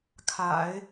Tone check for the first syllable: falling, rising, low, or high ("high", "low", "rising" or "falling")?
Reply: low